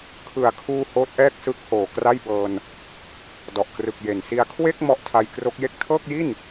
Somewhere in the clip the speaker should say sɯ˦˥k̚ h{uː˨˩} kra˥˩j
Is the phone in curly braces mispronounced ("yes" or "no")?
yes